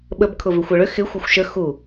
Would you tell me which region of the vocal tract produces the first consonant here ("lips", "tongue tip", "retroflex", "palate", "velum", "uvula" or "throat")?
lips